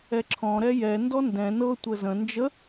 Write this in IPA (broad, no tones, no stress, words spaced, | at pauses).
ɛǁʰɔ̃ ɾɛjɛ ndɔndɛ̃ nɤ tʷəzə̃ nd͡ʒə